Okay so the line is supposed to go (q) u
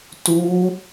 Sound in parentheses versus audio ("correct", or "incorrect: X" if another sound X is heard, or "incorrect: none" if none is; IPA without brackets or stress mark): incorrect: t